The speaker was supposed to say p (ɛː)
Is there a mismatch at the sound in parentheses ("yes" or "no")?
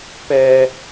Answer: no